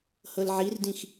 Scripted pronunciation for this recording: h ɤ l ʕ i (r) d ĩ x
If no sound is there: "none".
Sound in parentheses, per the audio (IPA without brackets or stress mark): r